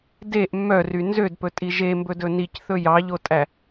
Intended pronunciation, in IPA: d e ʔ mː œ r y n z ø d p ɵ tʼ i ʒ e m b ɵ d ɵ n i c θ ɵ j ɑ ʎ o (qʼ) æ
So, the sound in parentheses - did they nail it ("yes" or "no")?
no